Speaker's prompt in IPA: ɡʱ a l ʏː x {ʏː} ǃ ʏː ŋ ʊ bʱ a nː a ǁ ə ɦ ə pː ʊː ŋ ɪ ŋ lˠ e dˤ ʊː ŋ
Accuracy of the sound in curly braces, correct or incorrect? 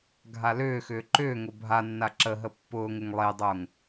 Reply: correct